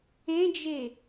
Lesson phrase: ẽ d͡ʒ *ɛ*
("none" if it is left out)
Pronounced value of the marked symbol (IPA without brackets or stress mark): e